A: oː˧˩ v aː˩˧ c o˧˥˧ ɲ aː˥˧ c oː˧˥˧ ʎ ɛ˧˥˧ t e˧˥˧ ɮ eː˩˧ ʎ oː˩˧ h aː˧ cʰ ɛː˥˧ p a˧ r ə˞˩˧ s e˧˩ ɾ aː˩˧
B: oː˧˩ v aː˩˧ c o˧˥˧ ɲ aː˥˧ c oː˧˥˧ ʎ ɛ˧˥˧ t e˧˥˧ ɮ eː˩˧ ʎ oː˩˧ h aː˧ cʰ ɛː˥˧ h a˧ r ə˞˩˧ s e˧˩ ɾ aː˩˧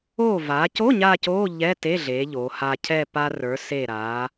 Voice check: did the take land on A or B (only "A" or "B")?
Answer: A